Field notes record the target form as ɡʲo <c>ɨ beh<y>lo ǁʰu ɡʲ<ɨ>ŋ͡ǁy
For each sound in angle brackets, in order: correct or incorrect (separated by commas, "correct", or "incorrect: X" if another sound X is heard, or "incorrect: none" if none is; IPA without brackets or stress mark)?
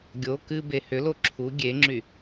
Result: incorrect: k, incorrect: ʏ, incorrect: e